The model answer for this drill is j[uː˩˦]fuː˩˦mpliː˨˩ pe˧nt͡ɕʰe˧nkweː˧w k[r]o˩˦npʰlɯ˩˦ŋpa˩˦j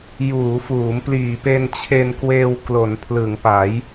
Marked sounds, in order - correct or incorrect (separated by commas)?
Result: correct, incorrect